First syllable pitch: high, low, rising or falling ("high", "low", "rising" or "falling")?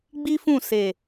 high